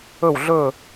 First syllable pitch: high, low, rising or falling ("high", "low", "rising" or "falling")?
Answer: falling